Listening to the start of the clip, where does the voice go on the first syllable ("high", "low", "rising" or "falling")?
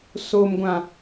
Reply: low